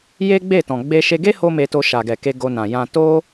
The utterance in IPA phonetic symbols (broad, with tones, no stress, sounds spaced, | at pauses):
j e˦ ɡ͡b e˦˨ t ɔ̃˨ ɡ͡b e˧ ʃ e˧ ɡ e˦ h o˦ m e˧ t o˧ ʃ a˨ ɡ ɛ˨ k e˧ ɡ o˧ n ã˨ j ã˨ t o˧